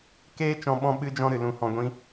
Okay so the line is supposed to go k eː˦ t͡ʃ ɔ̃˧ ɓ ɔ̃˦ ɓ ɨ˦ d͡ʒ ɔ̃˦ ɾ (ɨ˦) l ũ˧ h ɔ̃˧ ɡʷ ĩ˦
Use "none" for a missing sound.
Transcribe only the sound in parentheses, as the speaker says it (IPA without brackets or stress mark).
ɨ˨